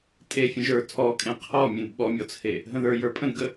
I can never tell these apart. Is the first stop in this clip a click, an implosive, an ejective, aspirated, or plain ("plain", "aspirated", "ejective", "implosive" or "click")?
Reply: ejective